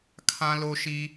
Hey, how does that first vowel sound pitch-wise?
high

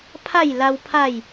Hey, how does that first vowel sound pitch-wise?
falling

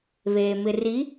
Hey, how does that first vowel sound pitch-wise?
low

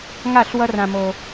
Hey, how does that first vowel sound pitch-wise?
falling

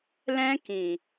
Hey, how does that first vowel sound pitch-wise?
high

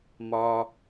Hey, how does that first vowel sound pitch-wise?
low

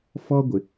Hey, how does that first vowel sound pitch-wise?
high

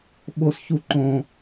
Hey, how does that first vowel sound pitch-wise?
high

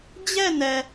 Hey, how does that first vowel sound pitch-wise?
falling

